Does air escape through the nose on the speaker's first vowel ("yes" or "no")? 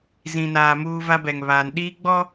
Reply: yes